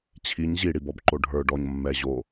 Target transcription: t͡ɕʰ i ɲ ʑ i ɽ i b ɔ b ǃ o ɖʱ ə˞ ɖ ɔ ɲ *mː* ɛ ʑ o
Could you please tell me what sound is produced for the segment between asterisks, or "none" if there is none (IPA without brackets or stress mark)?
mː